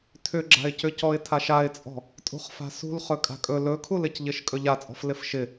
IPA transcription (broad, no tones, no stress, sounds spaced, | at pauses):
tʰ ʏ ɡ͡ǁ a̤ ɪ̯ c ʏ c ɔ ɪ̯ tʰ a ʃ a ɪ̯ t͡sʼ ɔ̤ | tʼ ṳ χ f a̤ s ṳ l χ ɵ kʼ a̤ kʼ ɵ l ɵ kʰ u l ɪ c ʎ ɪ ʃ kʼ ɵ ʎ a t͡sʼ ɔ̤ f l ɪ f ʃ ɪ